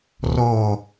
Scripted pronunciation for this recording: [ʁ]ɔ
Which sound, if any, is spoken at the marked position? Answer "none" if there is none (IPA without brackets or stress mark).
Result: r